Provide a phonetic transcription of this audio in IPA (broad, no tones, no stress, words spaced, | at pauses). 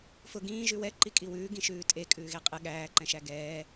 fʊ ɡĩː ʒʉwɛ ǃikʼiwʉː ɡĩʃʉːtʼe kʼʉːɣeqʼɨ ɠæː ǃɛ̃ʃæɡɛː